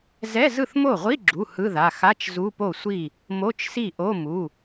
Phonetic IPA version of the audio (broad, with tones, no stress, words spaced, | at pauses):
zɛ˧˥˧zɯ˥˩θmo˥˩ ʁʷi˧˥˧ɡ͡ǁu˩˧˩ hɯ˧˥˧ða˩˧˩ xa˧˥˧t͡ʃ zu˧˥˧po˥˩sʷi˥˩ | mo˧˥˧t͡ʃsi˥˩ʔo˧˥˧ mu˩˧˩